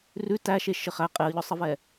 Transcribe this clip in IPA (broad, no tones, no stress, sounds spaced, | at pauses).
r ʉ t æ ʃ e ʃ ɘ χ æ qʼ e ə̯ ʎ ɔ sˤ ə v ɛ